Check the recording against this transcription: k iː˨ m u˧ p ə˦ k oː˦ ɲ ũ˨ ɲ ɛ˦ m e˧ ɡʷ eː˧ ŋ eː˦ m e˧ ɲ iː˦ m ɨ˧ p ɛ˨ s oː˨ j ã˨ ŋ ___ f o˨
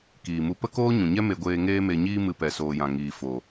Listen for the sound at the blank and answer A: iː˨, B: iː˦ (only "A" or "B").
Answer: A